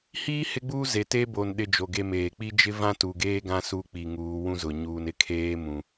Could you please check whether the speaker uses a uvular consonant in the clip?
no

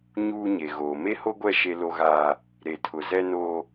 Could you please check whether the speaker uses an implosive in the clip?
no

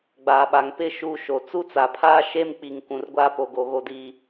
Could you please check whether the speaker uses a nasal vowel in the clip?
yes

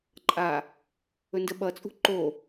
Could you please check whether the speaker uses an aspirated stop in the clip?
no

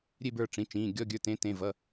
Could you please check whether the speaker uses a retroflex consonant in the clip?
yes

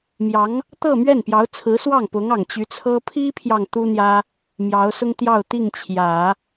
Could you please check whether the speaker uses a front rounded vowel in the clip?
yes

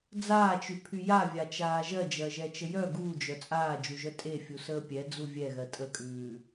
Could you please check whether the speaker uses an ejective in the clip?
yes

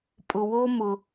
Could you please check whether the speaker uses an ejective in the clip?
yes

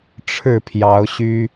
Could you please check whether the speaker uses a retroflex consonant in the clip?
yes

